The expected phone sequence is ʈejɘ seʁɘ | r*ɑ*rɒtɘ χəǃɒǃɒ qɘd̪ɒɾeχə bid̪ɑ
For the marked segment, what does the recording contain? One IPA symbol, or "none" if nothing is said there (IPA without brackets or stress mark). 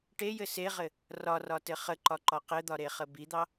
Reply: ɒ